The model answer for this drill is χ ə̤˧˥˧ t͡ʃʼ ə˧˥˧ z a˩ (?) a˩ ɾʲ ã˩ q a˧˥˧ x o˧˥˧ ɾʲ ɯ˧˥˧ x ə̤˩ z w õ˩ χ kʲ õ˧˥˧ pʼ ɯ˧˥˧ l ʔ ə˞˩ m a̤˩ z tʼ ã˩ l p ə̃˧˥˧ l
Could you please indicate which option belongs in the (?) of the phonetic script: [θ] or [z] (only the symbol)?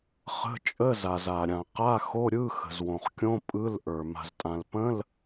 z